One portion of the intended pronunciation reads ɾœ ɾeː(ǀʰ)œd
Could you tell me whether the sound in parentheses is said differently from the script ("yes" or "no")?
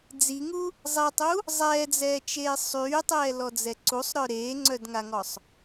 yes